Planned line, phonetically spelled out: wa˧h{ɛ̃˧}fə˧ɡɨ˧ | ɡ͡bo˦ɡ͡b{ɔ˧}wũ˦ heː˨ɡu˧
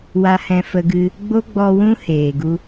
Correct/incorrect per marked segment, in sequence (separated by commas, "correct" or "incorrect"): correct, correct